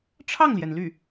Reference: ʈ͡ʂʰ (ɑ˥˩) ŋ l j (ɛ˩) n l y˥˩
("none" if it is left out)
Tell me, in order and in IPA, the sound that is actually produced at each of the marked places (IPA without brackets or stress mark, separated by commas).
ɑ˥˩, ɛ˩